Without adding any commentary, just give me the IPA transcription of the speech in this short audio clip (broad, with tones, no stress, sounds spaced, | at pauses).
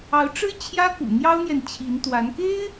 ɑ˧˥ ʊ̯ ʈ͡ʂ ɻ̩˥ t͡ɕʰ j ä˥ k ṵ˨˩ n̪ j ɑ˥ ʊ̯ n̪ j ɛ˨ n t͡ɕʰ i˧˥ n t̪ w a˧˥ n k e˥ ɪ̯